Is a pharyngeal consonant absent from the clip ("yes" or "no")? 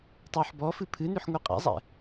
no